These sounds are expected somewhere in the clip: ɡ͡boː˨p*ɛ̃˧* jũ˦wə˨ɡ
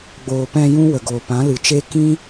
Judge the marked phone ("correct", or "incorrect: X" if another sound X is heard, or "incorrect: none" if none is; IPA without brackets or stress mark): correct